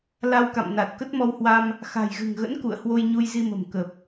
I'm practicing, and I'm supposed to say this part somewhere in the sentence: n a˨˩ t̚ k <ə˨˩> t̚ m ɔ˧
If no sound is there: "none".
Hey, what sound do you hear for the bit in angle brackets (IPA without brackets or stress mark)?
ə˦˥